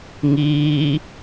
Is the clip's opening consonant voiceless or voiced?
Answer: voiced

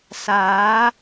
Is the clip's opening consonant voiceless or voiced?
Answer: voiceless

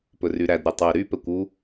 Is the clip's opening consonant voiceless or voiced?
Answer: voiceless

